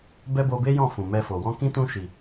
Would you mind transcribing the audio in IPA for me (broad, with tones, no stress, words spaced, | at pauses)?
bɛ˦bo˧be˦jɔ̃˦˨ fũ˨mɛ˧fo˨ wɔ̃˧kĩ˦ tũ˧ ʃi˨